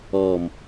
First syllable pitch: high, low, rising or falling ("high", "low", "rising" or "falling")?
low